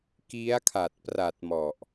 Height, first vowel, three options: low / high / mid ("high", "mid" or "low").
high